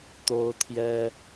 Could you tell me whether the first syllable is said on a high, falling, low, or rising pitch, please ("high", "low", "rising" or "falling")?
high